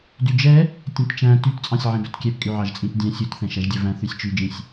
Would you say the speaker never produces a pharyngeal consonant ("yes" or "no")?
no